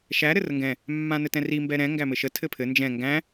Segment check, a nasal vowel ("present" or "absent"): present